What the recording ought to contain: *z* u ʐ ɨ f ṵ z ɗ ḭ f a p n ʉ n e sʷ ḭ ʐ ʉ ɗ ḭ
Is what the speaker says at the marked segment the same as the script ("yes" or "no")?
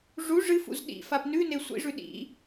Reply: no